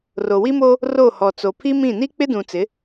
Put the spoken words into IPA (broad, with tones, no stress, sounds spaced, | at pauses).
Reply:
r o˨ w i˦ m o˦ | r o˦˨ h ɔ˨ t͡s o˨ pʰ i˦ m ĩ˦˨ n i˦ k͡p ɪ˦ d ũ˨ t͡s ɪ˨˦